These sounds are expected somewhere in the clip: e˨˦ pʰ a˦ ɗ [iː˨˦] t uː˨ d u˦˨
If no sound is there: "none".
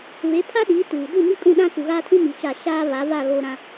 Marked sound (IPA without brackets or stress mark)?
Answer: iː˨˦